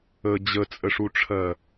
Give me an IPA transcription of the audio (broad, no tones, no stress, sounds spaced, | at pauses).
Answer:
ə d͡ʑ ə t͡sʼ ə ʂ u ʈ͡ʂʰ ɜ